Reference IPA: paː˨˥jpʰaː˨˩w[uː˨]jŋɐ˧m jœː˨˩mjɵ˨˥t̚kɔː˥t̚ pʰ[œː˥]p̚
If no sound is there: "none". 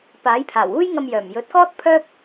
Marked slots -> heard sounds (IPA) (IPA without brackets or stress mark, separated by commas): uː˥, œː˥